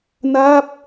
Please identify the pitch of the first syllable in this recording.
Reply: falling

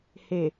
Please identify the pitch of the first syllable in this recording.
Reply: low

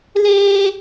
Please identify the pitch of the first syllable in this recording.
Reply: high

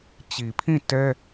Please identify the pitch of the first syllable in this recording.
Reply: low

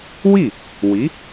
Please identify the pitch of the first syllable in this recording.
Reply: falling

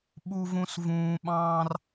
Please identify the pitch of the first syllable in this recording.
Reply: high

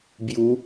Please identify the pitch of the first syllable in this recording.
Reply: rising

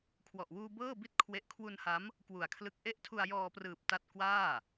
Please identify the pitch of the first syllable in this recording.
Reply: low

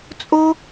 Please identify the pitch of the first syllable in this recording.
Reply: high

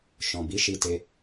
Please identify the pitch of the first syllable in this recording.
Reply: low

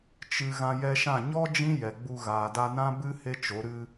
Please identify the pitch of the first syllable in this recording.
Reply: low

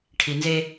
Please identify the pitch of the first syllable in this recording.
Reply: low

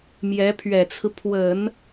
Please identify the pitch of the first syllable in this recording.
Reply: rising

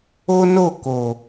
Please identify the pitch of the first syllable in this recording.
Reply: high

